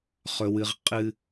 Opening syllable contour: high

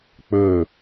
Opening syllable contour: falling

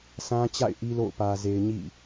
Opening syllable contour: high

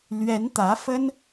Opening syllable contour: rising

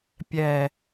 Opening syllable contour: low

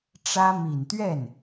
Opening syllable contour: high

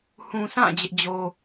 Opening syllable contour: low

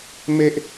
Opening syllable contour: high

